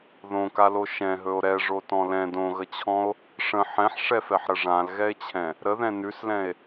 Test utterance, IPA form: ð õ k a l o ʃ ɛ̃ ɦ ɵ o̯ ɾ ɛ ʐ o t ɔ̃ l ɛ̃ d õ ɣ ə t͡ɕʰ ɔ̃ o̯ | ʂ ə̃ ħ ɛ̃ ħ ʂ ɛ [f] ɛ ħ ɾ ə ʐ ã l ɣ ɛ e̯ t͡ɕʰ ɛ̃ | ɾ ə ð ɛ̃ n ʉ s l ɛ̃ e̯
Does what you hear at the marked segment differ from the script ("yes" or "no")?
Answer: no